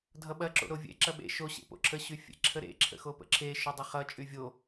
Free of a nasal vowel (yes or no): yes